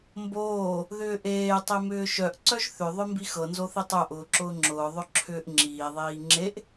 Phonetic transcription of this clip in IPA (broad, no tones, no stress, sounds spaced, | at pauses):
m b oː | ð ʏː ʔ eː tˤ e m ʏː ʃ œ ʔ ǀ œ ʒ θ ʏ ðˤ œ m b i x ɤ n z o θ i tˤ œ ʔ ʊː ǁ ʊː ŋ͡ǁ ʊː ðˤ œ ǁʰ ʏː ʔ ŋ͡ǁ iː ðˤ iː ŋ͡ǁ e ʔ